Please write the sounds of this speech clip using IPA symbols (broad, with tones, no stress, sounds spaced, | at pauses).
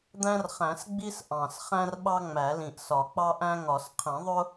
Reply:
d̪ æ̃˦ r χ æ̃˨˩˦ s ɡ͡b i˦ s ʔ ɑ̃˨˩ s χ æ̃˦ r ɓ ɑ˦ ŋ͡m æ˨˩˦ l ĩ˨˩ ʔ s ɒ˨˩˦ k͡p ɑ˦ ʔ æ̃˦ ŋ ɒ˨˩˦ s qʰ ĩ˨˩˦ ðˤ ʊ˦